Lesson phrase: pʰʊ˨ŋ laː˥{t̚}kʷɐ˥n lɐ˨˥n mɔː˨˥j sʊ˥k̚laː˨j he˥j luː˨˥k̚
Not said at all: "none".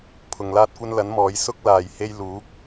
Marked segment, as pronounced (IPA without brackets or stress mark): t̚